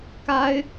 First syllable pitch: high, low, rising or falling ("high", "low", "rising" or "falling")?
high